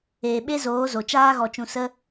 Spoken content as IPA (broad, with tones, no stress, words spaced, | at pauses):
eː˨ɓe˦zoː˨˦ zo˨t͡ʃaː˦ɣɔ˧t͡ʃũ˧ sə˦